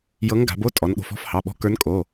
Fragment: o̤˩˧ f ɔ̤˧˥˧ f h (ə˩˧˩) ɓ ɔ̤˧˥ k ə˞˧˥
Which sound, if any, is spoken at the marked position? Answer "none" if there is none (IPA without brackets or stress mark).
ɑ˩˧˩